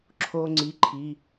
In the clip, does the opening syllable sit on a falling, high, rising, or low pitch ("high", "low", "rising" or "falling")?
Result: high